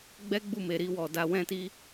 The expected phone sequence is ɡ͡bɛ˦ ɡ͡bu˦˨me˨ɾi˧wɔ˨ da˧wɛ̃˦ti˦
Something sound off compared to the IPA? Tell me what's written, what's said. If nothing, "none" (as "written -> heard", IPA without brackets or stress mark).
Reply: none